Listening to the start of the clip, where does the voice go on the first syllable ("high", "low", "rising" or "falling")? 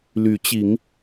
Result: rising